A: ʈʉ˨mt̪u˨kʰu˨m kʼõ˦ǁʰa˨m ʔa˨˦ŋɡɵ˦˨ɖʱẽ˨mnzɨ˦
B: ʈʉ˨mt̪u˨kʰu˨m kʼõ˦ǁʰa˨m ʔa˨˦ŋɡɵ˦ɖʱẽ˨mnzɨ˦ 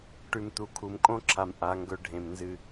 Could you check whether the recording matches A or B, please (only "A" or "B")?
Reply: B